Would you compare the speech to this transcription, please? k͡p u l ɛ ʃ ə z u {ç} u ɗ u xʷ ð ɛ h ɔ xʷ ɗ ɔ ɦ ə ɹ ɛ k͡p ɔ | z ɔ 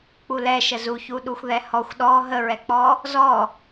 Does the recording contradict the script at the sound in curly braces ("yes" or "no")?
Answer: no